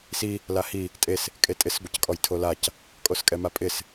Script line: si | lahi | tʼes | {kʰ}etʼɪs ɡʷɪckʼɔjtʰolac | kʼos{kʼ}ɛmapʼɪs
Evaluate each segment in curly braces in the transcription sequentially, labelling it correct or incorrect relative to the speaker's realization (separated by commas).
incorrect, correct